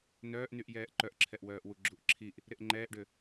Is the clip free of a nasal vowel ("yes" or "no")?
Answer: yes